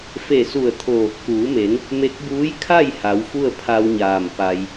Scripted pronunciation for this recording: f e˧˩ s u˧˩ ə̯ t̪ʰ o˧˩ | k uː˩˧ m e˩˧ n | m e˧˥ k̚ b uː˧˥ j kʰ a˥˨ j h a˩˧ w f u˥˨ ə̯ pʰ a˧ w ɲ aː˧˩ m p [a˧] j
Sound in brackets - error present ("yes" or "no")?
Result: no